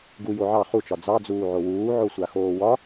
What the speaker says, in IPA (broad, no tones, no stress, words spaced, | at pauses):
ɡu joʕɑ χut͡ʃɒ d͡zɑd͡zuːʕo wuːʕosʷaxoː wɒ